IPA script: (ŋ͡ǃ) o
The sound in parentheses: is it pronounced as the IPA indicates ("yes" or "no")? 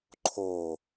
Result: no